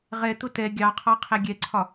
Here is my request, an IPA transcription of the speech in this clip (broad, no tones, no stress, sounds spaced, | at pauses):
ʁ ɛ t̪ ʊ t ɛ ɡʲ ɑ qʰ ɑ qʰ æ ɡʲ ɛ ǀʰ ɒ